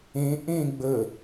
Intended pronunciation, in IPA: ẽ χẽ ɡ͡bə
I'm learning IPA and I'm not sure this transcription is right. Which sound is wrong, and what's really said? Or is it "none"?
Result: χ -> ʔ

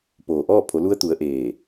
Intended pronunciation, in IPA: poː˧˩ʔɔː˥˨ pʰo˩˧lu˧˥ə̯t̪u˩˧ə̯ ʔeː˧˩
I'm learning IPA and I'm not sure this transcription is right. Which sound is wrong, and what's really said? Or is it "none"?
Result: none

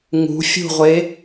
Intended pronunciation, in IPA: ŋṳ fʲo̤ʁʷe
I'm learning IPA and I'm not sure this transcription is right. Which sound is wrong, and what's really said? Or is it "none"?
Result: o̤ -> ṳ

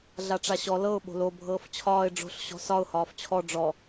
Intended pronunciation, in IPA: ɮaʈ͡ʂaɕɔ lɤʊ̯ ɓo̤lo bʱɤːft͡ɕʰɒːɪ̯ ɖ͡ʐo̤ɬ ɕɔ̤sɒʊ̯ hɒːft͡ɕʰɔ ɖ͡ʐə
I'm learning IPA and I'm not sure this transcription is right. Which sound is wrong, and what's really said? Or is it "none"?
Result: ə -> ɔ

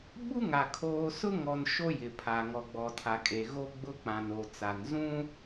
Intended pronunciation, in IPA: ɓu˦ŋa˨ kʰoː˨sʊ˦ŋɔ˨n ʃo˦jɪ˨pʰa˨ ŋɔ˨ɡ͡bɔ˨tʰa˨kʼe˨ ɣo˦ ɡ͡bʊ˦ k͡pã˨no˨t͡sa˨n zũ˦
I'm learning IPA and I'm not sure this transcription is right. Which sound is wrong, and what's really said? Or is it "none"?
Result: none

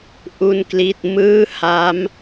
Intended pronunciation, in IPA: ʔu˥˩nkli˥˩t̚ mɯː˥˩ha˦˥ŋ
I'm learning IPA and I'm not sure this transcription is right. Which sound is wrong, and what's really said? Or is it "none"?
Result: ŋ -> m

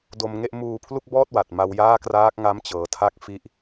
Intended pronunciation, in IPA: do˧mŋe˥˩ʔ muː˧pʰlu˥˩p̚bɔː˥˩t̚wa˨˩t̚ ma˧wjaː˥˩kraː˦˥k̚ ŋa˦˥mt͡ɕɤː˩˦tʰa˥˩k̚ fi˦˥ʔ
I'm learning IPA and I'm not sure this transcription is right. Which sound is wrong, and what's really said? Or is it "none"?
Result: p̚ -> k̚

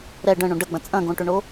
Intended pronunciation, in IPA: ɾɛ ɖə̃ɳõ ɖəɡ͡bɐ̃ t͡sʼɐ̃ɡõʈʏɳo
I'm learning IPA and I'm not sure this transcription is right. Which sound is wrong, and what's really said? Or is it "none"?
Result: none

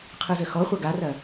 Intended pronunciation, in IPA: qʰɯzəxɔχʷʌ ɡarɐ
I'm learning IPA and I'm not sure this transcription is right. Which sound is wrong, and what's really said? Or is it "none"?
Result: none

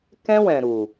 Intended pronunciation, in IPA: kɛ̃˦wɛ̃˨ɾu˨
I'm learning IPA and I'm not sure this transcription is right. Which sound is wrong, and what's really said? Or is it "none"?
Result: none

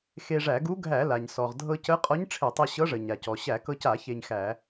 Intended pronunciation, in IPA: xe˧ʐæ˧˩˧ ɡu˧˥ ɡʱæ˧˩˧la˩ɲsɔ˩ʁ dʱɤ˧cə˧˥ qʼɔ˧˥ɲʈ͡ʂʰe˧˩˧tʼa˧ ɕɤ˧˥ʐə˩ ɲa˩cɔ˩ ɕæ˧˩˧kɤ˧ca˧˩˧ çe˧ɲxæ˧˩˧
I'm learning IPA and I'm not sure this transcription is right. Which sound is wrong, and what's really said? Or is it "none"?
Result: tʼ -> tˤ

